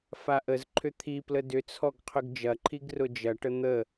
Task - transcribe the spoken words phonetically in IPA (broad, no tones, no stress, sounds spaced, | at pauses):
f a ʔ ə z ǃʰ ʏ t̪ʰ i p l ə d ʏ t͡sʰ ɔ ɡ qʰ ʏ ɡ d͡ʒ ɐ ǃʰ i ɡ r ʊ d͡ʒ ɐ ʈ ə n̪ ə